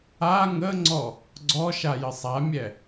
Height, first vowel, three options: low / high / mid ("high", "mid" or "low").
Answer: low